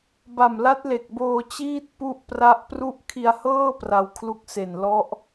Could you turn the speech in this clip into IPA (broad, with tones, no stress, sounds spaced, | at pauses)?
b a˨˩ m l a˦˥ t̚ l e˨˩ k̚ b oː˧ t͡ɕ iː˥˩ t̚ p u˥˩ ʔ p r a˥˩ ʔ p r u˥˩ ʔ kʰ i˧ a̯ h ɤː˥˩ p r a˧ w kʰ l u˦˥ k̚ s e˨˩ n l ɔ˦˥ ʔ